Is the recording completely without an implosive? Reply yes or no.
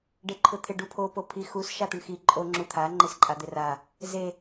yes